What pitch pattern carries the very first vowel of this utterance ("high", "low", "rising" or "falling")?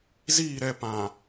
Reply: falling